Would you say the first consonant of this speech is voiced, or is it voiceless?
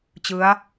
voiceless